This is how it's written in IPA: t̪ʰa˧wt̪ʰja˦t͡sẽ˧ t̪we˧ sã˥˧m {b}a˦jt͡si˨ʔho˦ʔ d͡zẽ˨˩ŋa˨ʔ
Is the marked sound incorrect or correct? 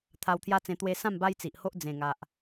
correct